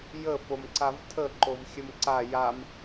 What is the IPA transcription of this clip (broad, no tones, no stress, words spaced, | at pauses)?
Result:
jə fomǀavtʰə ǃovxʲəmǀa jam